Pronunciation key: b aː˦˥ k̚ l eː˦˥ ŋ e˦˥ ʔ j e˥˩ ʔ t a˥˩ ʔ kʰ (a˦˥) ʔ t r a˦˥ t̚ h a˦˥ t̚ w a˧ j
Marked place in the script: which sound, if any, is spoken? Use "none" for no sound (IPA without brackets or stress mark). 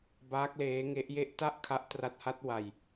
a˦˥